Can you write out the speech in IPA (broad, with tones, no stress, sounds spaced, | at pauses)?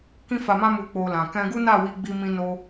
k ĩ˦ f a˧ m ã˦ m u˧ k͡p o˧ l ã˨ k ɛ̃˧ ɡ u˦ n a˦˨ w i˧ ɡ͡b i˧ m ĩ˧ n o˧